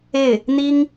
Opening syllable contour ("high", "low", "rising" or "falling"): falling